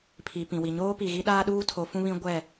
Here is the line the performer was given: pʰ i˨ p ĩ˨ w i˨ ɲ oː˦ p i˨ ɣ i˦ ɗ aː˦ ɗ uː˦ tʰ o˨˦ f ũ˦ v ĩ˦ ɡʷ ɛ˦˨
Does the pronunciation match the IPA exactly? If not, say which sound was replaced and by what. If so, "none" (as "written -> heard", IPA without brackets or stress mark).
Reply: v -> β